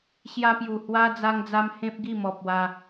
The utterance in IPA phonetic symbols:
ɕja˦pju˨˩ hwa˦ d͡za˦ŋd͡za˦m hẽ˦p̚ɡi˥˧mɔ˨p̚wa˧

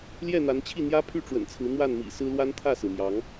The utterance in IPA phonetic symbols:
ljɛ˥˨n̪a˨˦nt͡ɕʰi˥˨ n̪jä˦pʰy˥˨ʈ͡ʂwə̰˨˩nt͡sʰɹ̩˨˦ n̪wa˥˨nmḭ˨˩sɹ̩˦lwa˦n t̪ʰä˥˨sɹ̩˩mjɑ˨˦ŋ

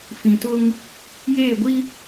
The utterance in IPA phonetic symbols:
fĩ˨tʊ˦ŋ | jeː˦˨ɡʷi˦

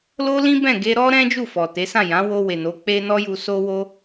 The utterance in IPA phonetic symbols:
lo˦lĩ˦bɛ̃˦˨ ɡe˧ɾɔ˦ɾɛ̃˦ d͡ʒu˦˨fɔ˨te˨˦sã˦˨ jã˨˦wo˧ we˨no˨˦ k͡pe˦ nɔ˦ju˧so˦wo˦

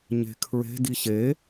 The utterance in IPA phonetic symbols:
ɲe̤kʰɹe̤ diɕe

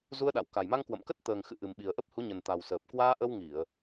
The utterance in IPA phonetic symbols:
zu˧ə̯ɗa̰˧˨w ka˨˩jma˧ŋ kwə̰˧˨mkə˦˥t̚ t̪əː˨˩ŋ xɨ̰˧˨ʔɨ˨˩m ɓi˨˩ə̯ʔə˦˥p̚hu˨˦ ɲə˨˩nt̪a˨˩w səː˨˩p̚ kwaː˧ʔə˧w ŋi˧˩˨ə̯

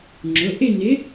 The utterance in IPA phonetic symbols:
ŋ͡ǁʊ˩˧˩ ʔɪ˥˧nɪ˨˥

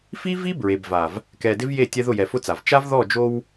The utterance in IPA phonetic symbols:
fi˦vi˦ bɹe˨bva˨v | kɛ˨dɪ˦vje˦˨ tʲɛ˦ðʊ˦˨jɛ˨ fʊ˦t͡sa˨v t͡ʃa˦vðɔ˦˨d͡ʒo˦w

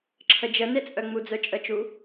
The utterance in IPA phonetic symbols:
ǁʰəd͡ʒənet͡sʼœ ŋ͡mud͡zœt͡ʃʼət͡ʃu

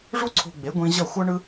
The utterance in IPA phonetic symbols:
ʐu˥ǀʰo̤˧ɡ͡be˩˥ ɡʷĩ˧ ʑʌ˥˩xʷʌ˥ɳɯ˥

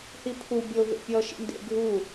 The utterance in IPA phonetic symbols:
hipʰu bʲo vḛpʲɔ ʃḭndḛ ɡʱu

